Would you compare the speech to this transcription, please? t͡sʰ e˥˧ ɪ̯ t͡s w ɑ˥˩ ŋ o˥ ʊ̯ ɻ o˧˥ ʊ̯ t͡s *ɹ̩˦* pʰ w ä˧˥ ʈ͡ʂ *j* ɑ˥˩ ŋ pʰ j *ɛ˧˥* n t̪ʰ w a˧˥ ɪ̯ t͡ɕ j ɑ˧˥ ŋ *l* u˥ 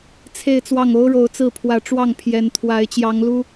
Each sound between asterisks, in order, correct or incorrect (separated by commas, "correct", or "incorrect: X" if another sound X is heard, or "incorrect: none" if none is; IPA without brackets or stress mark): incorrect: ɹ̩˥˩, incorrect: w, correct, correct